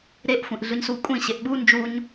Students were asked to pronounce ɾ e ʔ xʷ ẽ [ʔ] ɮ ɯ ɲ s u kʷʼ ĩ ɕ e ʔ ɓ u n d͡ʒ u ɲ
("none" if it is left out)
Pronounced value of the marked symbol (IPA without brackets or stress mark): ʔ